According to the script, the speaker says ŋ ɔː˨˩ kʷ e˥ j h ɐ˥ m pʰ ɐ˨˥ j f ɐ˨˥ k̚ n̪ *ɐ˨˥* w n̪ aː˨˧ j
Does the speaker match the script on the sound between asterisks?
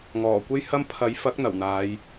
no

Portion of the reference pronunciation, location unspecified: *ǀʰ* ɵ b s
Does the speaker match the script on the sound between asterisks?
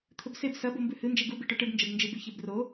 no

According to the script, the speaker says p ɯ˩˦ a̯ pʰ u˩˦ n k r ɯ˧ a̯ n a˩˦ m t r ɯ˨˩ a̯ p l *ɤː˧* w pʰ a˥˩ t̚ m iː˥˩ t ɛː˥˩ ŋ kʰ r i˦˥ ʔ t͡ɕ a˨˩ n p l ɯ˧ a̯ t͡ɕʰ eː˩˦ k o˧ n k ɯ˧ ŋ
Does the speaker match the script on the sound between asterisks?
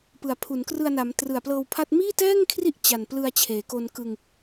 yes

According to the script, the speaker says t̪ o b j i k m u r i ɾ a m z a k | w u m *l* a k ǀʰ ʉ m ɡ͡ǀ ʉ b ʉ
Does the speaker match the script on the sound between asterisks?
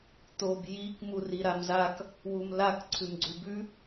yes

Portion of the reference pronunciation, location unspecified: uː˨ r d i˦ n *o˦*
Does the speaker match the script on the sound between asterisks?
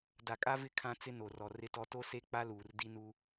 no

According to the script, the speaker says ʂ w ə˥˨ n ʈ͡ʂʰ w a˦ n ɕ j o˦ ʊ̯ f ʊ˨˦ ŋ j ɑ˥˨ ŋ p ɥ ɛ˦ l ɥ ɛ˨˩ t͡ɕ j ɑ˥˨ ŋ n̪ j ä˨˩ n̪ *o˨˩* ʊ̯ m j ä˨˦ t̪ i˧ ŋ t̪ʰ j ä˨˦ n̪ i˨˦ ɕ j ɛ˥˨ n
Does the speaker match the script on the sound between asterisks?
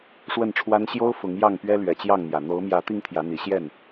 no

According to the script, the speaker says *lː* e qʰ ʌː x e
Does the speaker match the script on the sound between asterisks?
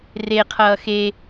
no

